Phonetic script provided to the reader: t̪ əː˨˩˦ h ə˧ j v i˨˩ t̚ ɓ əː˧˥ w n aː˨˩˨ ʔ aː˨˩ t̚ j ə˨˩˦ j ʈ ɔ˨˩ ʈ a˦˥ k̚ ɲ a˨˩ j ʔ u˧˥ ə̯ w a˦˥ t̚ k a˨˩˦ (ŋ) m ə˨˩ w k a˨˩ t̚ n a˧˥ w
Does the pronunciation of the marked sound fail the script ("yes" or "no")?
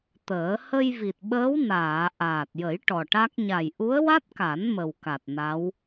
yes